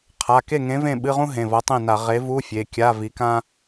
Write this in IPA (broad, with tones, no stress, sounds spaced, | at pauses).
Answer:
qʰ a˩˧˩ k e˥˩ ŋ ẽ˨˥ v ẽ˥˩ ɓ ɨ˧˥˧ ʁ ũ˥ ɦ ẽ˩˧˩ v ʌ˨˥ tˤ ẽ˥˩ n a˧˩˧ ʁ e˨˥ v u˧˥˧ fʲ e˩˧˩ kʲ a˧˥˧ v i˨˥ k ã˥